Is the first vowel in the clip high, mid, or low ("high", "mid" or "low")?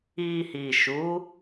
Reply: high